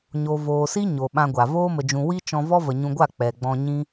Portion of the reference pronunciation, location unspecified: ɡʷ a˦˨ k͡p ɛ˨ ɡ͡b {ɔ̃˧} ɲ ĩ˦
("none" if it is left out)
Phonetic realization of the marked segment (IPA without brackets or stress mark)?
ɔ̃˧